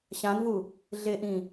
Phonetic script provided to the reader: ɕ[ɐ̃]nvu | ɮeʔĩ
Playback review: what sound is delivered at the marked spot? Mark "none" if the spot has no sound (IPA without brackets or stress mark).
ã